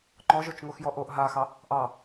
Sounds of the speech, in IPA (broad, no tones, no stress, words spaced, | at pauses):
ŋ͡ǃɔʒot͡ʃŋoxjɔ ʔoʔ ɦaxɑ | ʔɑ